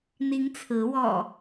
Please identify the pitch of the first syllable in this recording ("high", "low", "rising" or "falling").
rising